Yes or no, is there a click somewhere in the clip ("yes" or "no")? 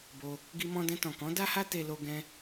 no